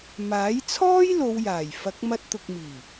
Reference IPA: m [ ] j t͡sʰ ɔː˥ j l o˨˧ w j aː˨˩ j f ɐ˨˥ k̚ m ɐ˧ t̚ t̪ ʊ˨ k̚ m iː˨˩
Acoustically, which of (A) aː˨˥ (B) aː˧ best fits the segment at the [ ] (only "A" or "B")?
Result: A